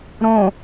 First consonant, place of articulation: alveolar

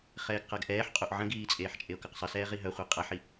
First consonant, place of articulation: uvular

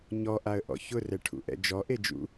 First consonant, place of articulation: palatal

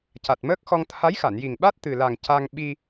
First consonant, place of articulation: palatal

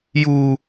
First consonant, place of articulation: palatal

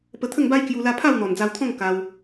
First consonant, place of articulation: labial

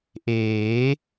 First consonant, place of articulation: glottal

